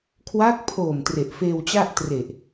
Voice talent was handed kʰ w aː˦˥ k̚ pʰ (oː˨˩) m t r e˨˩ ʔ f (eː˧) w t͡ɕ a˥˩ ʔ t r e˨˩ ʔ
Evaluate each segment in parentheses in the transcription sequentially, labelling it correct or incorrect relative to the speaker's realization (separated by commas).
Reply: correct, correct